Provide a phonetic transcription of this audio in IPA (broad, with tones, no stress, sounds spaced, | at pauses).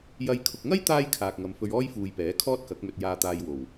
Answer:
j ɐ˨ j kʰ ʊ˨ k̚ ŋ ɐ˥ j t̪ aː˥ j kʰ aː˨ k̚ ŋ ɐ˨ m f ɵ˧ ɥ ɔː˥ j f uː˨ j p ɛː˨˥ kʰ ɔː˥ t̚ k ɐ˨˥ k̚ m ɵ˧ t̚ j aː˧ t̪ aː˧ j w o˨˩ w